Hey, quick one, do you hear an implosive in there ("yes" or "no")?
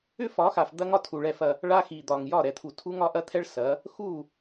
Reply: no